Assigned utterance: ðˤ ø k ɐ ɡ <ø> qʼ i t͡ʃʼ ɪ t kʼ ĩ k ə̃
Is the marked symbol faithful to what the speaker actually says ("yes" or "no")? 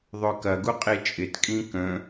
no